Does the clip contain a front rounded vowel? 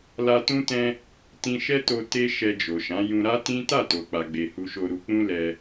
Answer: no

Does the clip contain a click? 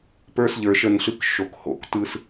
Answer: no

